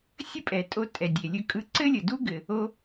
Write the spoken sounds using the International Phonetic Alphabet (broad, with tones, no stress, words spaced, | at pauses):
sʲə˥pʼɛ˩tʼo˧ tʼɛ˩ dʲe˩lʲɵ˧ kʼɯ˧ǀɘ˥lʲə˩ du˥ɡɘ˩ | o˧